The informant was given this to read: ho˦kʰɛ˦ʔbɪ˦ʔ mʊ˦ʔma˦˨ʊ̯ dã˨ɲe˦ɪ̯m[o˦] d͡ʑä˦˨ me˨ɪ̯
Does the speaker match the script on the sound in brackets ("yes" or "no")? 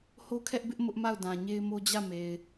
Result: yes